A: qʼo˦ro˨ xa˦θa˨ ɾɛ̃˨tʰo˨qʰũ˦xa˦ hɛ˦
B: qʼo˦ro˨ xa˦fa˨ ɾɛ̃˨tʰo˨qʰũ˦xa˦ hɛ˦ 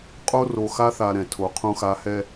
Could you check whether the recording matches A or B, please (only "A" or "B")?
A